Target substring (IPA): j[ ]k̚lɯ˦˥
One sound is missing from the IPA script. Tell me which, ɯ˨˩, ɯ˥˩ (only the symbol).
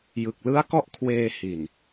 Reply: ɯ˨˩